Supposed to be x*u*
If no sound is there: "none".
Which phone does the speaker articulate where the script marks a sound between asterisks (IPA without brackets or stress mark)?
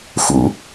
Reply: ṵ